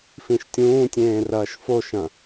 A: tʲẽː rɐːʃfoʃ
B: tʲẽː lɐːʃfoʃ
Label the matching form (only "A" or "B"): A